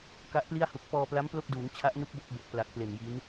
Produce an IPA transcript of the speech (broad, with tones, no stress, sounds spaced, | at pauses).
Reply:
k a˦˥ ʔ p l i˥˩ a̯ h u˨˩ k̚ p ɔː˧ p l a˦˥ m p l o˥˩ k̚ d uː˩˦ ŋ t͡ɕʰ a˦˥ ʔ n u˦˥ k̚ b o˦˥ k̚ b o˨˩ k̚ p l a˨˩ k̚ p l e˨˩ n j i˦˥ n